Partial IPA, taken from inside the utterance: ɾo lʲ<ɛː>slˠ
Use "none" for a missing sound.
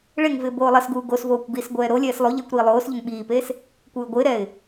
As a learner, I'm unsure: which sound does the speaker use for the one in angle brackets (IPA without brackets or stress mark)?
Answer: ɛː